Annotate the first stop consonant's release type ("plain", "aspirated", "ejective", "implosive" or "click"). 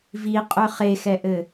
ejective